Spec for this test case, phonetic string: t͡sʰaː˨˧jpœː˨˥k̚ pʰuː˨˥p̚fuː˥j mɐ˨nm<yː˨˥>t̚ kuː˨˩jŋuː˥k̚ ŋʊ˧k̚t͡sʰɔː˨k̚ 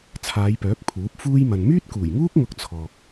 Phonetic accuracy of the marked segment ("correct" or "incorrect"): incorrect